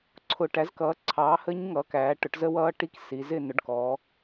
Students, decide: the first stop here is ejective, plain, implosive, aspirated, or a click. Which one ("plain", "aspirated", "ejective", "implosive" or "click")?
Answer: click